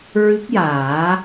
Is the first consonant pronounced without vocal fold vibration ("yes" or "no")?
no